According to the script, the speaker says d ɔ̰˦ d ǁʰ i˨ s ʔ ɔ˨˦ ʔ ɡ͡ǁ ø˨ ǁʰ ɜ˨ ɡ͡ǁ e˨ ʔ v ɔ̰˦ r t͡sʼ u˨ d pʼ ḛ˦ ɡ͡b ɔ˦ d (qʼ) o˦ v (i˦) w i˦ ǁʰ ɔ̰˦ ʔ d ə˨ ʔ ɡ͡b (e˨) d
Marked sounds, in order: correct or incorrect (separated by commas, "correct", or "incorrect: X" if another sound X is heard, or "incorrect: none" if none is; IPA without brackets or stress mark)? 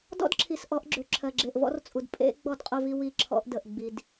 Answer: correct, correct, incorrect: i˨